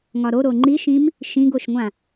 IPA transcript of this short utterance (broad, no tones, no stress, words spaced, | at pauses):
ŋɒɾoɾo ŋ͡ǃiʃĩm | ʃĩɡoʃŋʷã